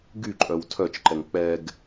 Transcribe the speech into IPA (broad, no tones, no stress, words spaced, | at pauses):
ɡyǃʼœw tʰœt͡ʃǃɛŋ k͡pɛɡ